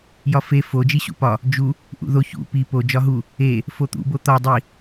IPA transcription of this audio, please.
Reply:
j ɒ f e f o d͡ʒ i ɕ ṵ p ɒ | d͡ʒ u | ʔ ṵ ð o ç ṵ p i p o d͡ʒ ɒ ɦ u | e | f o t̪ ṵ b o t̪ ɒ dˤ i

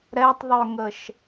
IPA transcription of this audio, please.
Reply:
ɾ ɛ tˤ ðˤ œ ŋ ə ʃ

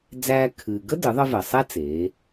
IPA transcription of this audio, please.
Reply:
d͡z æː˧ kʰ ɨː˩ ɡ ə˥ d ɨ˩˧ ðˤ ə˧ v ɜ˩ sˤ ɛ˥ t͡s eː˩˧

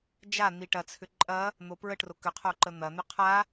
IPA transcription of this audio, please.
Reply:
d͡ʒ a n̪ i ʈ ɐ t͡sʰ ʏ ǃʼ ɐ | n̪ o p ɹ ə ʈ r o k ʏ qʰ o ǃ ə n̪ ɐ n̪ ʏ qʰ a

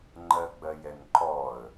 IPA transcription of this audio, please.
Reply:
ŋ͡ǃ ɜ ɡ͡b ɜ j ɛ n ǃ ɔ ə̯

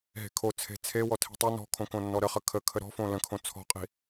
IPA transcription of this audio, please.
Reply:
ɦ e̤ kʰ o t͡sʰ e̤ t͡sʰ e w ɔ tʰ i̤ tˤ o n ɔ̤ kʰ õ k õ nː ɔ ɾ ə χ ə kʰ ə kʰ ə ɾ ɔ̤ f õ l ə̃ kʰ õ t͡sʰ ɔ̤ qʼ i̤

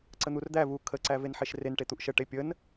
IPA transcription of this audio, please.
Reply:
ǀ ə n̪ u r d̪ æ v u kʰ ə ǀ æ v e n ħ e ʃ r e n ʈ e t̪ u ʔ ʃ ə ʈ e pʲ ə n

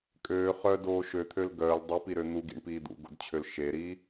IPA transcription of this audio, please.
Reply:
kʼ øː χ œ d oː ʃ ø t̪ʰ ø l ɡ œː l dˤ u p i ɾ ø n̪ u ɡ ḭ ɳ p iː d̪ ṵ ɡ o̰ d t͡ɕʰ ø l ʃ e ɾ iː

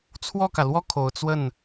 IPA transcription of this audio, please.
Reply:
t͡sʰ w ɔ˥˩ k ä˩ l w ɔ˥˩ kʰ o˨˩ ʊ̯ t͡s w ə˥˩ n

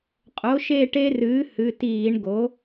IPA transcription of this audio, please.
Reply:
qʼ o˩˥ ʃ e˦˨ ʈ e˦ r ɨː˩˥ h ɨ˩˧˩ t iː˧˩˧ ɳ ɡ o˩˥

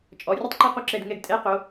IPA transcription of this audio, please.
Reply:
t͡ʃʼ ɔ˩˧ rʲ ʊ˥ tˤ ǃ a˥ q u˦˨ ǁ ɛ˦˨ d ŋ ɛ˦˨ ɡ tʼ ɛ˧˥˧ q o˩˧

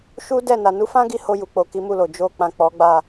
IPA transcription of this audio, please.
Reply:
ʃ u˦ d ɛ˦˨ n a˨ n u˨˦ f ã˦ ɡ i˧ h o˧ j u˨ k͡p o˨ k i˨˦ m u˦˨ l o˨ d͡ʒ o˧ k͡p ã˨ k͡p ɔ˨˦ ɡ͡b a˦˨

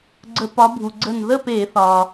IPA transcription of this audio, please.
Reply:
ɡ͡ǀ ə˧˩˧ p ɒ˨˦ bʱ u˩ ɡ͡ǀ ə˧˩ n ð ə˥˨ p e˧˩˧ θ ɒ˩

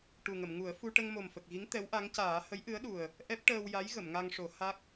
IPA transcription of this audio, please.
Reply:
ʈ u˨˩ ŋ ə˨˩˨ m ŋ u˨˩˦ ə̯ f u˧ ʈ ə˧ ŋ m o˨˩ m f ə˨˩ k̚ ɣ i˧˥ ŋ t̪ ɛ˧˥ w ʔ a˧˥ ŋ c aː˨˩˦ h ə˧˥ j ʔ ɨ˧˥ ə̯ ɗ u˨˩ ə̯ | ʔ ɛ˦˥ p̚ ʈ əː˧ w j a˧˥ j ɣ ə˨˩˨ m ŋ a˧ ŋ ʂ o˨˩˦ h a˦˥ k̚

